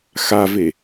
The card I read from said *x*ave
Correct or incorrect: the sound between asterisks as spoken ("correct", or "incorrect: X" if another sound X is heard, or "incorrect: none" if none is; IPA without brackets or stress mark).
correct